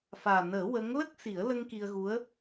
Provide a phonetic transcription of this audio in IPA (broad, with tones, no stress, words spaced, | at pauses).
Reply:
faː˨˩nəː˨˩˦ wə˧˥ŋ lə˦˥k̚si˨˩˦ə̯lə˧ŋ ki˧ə̯ɣu˧˥ə̯